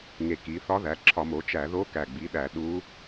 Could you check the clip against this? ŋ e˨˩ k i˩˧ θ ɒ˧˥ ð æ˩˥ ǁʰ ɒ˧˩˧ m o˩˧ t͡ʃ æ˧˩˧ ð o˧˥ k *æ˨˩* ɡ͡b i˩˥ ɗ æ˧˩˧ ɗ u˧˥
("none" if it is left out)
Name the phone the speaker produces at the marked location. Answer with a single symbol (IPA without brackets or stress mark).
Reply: æ˨˩